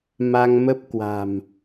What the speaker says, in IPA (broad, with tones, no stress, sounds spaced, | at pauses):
m a˧ ŋ m ə˦˥ p̚ k w a̤˨˩ m